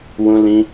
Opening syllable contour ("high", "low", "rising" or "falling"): high